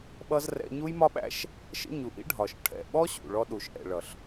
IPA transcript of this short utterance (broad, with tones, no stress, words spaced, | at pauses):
ɓʌ˦z rɛ̰˧ɲu˦jmɒ˦ɓæ̰˦ʃ | ʃə̰˦ɲu˨ʔḭ˦ɖʱɒ˨ʃ ʈʰɛ̰˨ɓɔ˦ ɕṵ˨ɭɔ˧ ɗu˨ʃʔɛ̰˨ɭʌ˨ɬ